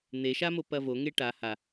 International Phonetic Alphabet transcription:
n̪eʃamo pɐvoŋe ʈa ha

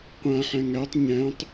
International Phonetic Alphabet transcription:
qʷãħæ̃ ŋætˤ ɲæ̃tˤ

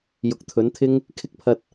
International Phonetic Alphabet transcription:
jʊ˨˥k̚t̪ʰɵ˨˥n t̪ʰɪ˥ŋ | kʰɪ˥k̚pʰɐ˧t̚

